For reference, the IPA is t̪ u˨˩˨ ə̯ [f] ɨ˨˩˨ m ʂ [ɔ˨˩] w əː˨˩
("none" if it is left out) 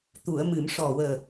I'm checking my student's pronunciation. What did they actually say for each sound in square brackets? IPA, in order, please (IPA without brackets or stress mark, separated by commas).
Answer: m, ɔ˨˩